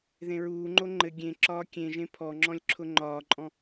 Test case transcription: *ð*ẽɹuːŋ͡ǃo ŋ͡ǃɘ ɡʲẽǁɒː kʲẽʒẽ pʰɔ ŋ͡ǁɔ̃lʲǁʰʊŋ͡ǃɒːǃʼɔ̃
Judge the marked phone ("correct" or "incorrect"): correct